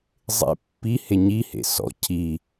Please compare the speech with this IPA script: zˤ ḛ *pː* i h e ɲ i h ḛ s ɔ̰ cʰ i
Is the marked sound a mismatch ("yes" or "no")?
no